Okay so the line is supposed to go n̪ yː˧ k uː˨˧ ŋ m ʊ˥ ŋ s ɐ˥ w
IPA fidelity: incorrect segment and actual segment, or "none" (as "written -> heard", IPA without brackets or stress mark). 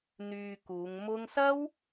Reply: none